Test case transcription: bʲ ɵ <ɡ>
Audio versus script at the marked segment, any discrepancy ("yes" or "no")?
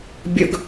no